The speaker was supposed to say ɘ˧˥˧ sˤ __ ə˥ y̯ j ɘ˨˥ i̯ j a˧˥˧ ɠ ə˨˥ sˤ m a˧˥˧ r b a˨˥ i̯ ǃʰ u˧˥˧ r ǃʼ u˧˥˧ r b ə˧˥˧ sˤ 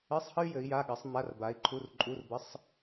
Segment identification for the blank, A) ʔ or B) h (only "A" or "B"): B